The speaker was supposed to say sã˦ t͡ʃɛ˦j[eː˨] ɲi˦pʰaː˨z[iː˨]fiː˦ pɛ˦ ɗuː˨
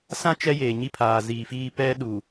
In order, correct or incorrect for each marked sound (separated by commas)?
correct, correct